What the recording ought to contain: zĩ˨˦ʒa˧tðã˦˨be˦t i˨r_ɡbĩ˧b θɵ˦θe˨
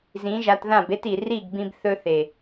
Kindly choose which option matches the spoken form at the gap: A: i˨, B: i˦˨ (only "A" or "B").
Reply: B